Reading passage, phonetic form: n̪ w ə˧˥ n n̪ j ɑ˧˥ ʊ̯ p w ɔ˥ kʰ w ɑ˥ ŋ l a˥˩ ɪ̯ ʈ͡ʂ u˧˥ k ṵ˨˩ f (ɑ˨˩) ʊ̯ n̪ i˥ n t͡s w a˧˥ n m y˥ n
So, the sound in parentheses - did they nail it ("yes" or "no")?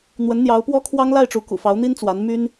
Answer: no